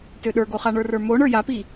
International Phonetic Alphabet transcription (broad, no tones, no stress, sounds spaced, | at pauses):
t ø ɗ ə˞ ɡ o χ a ɳ ə˞ r ə˞ m o ɳ ə˞ j a p i